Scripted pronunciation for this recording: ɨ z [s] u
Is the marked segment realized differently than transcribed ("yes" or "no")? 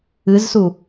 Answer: no